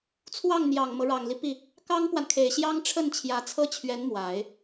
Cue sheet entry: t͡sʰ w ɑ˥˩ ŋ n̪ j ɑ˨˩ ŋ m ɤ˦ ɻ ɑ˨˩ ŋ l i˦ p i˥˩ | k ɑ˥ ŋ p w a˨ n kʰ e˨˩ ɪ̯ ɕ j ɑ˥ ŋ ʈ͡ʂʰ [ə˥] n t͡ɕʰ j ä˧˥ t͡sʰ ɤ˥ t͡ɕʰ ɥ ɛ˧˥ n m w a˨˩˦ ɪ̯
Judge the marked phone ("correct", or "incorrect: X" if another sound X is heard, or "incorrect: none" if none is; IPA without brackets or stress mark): incorrect: ə˥˩